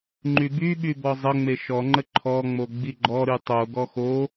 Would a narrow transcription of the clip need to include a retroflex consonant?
no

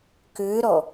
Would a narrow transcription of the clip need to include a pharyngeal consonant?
no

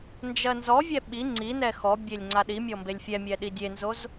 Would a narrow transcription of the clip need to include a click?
yes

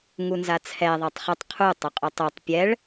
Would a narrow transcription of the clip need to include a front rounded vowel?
yes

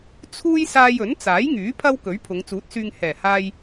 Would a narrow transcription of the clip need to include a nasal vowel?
no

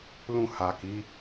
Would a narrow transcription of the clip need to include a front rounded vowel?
no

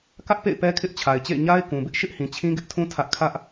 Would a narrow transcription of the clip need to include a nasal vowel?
yes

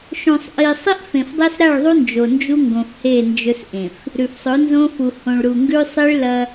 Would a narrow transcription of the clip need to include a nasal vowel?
yes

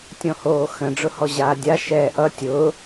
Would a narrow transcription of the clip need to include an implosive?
no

